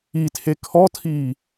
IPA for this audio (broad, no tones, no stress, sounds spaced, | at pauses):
i tʰ e kʰ ɔ tʰ iː